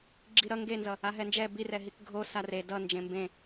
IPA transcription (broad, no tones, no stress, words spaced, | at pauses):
ɡ͡ǁiɾʌ ŋɡenzʌ | aɦɛnd͡ʒɛ birɛɦik ɡʱo sare dʌnd͡ʒẽ mbẽ